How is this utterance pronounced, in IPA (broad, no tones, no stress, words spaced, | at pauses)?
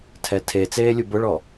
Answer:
tʰɛtʰe t͡seːlʲubʊɭɔ